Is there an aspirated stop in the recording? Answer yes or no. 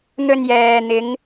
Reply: no